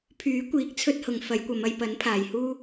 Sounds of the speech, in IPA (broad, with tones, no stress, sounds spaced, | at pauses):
pʰ yː˨˥ kʷ iː˨˥ k̚ t͡sʰ ɵ˧ t̚ h ʊ˨ ŋ f ɐ˨˧ j kʷ ɐ˨˧ m ɐ˧ j p ɐ˨˥ n pʰ aː˨ j h uː˥